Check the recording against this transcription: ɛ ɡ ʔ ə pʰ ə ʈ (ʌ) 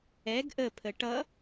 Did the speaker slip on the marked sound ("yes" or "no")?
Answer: no